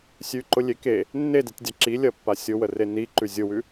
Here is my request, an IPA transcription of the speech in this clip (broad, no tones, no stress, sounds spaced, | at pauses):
sʲ ʉ ǃ ʊ lʲ e k e | nː e d e tʲ dʲ a ǁ i lʲ ɐ pː a sʲ ʊ w ə r e n i ǃ ʉ zʲ ʊ w ʉ